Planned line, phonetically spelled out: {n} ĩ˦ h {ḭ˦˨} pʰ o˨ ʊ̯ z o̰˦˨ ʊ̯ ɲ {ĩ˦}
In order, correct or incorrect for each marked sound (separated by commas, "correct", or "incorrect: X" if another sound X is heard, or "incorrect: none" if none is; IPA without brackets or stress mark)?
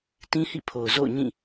incorrect: t, correct, incorrect: ĩ˦˨